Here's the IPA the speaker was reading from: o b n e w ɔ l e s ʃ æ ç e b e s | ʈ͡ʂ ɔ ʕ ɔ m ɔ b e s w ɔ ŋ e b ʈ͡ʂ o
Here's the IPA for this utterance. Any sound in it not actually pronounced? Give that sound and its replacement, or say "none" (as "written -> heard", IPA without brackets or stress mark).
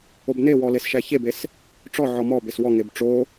none